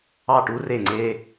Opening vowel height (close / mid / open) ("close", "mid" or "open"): open